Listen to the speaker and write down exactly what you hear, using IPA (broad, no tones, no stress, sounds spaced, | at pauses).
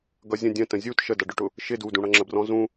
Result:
ɡ ʌ zʲ ə̃ dʲ ə̃ t ə̃ zʲ u t ʃ ə d ʌ ɖ ʊ ʈ ʊ | ʃ ɪ d u d ũ ɽ ʌ ŋ͡ǁ ə b r ɔ̃ z ũ